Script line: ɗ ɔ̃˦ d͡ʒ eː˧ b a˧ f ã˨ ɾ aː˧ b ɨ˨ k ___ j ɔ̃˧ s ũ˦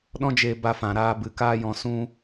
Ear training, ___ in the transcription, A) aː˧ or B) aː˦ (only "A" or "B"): B